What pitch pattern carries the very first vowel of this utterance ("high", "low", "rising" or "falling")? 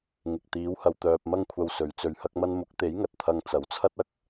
low